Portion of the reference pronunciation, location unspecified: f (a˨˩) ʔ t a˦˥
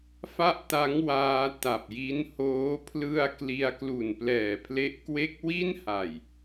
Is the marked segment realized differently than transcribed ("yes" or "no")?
yes